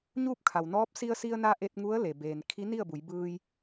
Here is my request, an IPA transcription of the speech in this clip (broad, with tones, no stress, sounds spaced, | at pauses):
ɲ uː˥˨ p̚ kʰ a˩ w n ɔː˧˥ p̚ s i˧ ə̯ s i˧ ə̯ n a˧ ʔ e˧ t̚ ŋ u˧˥ ə̯ l e˩ b eː˩ n kʰ i˧˥ n i˥˨ ə̯ b u˩˧ j b ɯː˧ j